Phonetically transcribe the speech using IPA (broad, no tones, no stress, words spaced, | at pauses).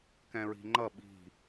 kɛ̃ɹi̤ŋ͡ǃʌ ɓi̤